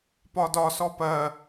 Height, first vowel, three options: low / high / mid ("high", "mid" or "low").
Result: low